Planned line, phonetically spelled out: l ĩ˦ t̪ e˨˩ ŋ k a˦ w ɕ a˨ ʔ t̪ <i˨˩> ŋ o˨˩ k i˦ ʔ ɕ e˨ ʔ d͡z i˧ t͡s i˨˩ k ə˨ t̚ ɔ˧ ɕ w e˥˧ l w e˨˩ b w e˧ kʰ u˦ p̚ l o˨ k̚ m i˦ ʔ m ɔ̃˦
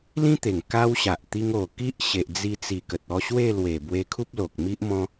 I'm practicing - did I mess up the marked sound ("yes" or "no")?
yes